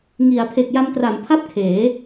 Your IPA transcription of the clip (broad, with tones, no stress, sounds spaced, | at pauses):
ŋ i˩˦ a̯ pʰ e˨˩ k̚ j a˧ m t r a˩˦ m pʰ a˥˩ p̚ kʰ eː˩˦